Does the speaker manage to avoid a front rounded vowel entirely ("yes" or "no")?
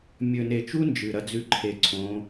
yes